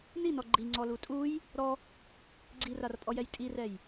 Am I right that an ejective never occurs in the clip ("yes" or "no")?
no